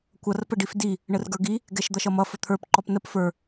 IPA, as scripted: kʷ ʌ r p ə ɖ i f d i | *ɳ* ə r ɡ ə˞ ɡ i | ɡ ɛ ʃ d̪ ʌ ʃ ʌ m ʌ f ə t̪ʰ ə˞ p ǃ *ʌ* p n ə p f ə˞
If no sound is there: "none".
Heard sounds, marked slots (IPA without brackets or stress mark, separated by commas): ɳ, ɔ